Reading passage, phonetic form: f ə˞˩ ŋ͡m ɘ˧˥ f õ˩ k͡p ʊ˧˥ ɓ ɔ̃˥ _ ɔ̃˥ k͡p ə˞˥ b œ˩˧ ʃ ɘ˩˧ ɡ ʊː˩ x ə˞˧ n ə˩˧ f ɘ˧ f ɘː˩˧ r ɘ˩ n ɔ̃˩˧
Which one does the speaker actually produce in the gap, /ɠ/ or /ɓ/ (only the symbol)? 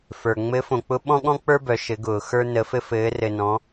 ɠ